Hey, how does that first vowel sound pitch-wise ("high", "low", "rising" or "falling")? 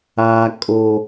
high